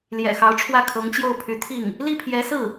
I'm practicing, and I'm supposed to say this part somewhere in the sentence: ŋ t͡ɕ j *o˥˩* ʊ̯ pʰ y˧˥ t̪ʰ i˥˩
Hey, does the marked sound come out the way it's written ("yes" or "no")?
yes